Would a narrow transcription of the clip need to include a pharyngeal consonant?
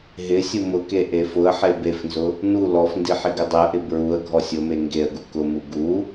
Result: yes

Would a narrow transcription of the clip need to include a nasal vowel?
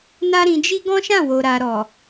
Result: yes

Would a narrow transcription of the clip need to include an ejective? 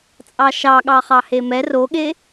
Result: yes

